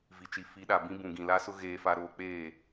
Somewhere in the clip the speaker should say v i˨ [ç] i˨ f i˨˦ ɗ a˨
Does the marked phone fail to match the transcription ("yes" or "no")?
yes